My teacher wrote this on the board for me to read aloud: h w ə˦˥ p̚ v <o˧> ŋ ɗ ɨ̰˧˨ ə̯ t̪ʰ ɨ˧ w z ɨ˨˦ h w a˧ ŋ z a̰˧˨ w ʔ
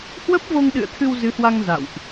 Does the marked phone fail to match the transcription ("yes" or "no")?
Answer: no